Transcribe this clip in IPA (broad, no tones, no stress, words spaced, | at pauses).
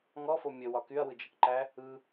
ŋɔfo mʲəwɒ kyɐ̯wɯd͡ʒəkǃæ | ɯ